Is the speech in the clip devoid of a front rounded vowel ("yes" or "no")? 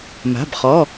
yes